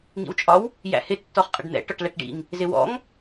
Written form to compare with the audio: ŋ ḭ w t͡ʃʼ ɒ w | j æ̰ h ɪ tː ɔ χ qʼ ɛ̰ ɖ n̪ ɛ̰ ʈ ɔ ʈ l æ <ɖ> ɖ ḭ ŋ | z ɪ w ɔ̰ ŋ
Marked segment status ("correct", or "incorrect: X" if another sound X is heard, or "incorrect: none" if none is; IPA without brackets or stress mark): incorrect: ʈ